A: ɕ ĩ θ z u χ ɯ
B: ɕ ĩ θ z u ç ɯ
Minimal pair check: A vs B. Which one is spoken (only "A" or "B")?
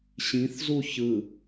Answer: B